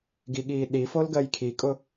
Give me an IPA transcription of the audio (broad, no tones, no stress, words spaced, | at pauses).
ɡiɠiː ɗifol ɡɜjkʰikʼʊ